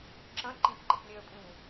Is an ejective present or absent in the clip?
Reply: present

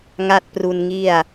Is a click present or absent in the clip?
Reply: absent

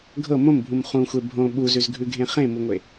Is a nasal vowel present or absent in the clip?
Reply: present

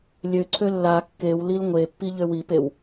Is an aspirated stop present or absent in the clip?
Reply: present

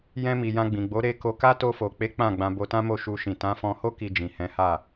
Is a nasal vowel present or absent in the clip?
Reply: present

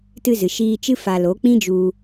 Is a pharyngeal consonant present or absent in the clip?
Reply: absent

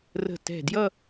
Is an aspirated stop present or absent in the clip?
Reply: absent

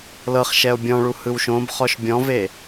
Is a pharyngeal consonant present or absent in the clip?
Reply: absent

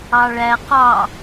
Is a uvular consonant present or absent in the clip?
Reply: present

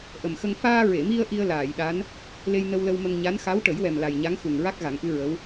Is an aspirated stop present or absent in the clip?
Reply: absent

